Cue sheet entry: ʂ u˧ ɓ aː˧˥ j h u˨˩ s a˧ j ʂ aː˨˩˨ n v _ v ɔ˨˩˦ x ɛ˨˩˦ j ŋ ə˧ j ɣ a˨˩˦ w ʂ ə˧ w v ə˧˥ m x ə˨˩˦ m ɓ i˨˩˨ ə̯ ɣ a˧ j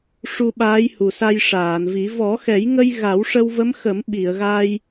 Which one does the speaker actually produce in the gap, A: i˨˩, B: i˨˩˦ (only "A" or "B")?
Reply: B